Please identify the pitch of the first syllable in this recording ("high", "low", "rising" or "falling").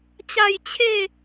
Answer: falling